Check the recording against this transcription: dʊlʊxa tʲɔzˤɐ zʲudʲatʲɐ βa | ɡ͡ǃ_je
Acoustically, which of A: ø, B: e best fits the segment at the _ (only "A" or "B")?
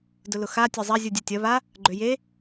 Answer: A